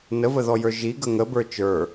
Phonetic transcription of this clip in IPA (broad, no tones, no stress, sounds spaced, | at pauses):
n ə v ə ð ɔ j ə˞ ʒ i ɡ ə ŋ ə b ə˞ t͡ʃ ə˞